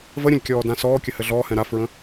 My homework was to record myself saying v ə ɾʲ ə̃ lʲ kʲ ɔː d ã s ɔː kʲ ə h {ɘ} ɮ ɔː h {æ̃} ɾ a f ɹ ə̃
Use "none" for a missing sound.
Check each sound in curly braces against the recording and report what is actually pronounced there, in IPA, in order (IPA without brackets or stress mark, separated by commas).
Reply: ɘ, ɛ̃